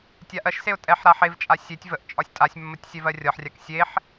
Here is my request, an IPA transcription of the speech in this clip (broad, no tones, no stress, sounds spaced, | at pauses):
tʲ a ʔ ɜ ʃ s e ʊ̯ tʼ ɛ ħ ɾ a ħ e v t͡ʃʼ a sʲ e tʲ v ə ʔ t͡ʃʼ ɒ sʲ tʼ a sʲ mː ə tʲ sʲ ɛ v ɜ rʲ ɒ ħ rʲ a k sʲ e ħ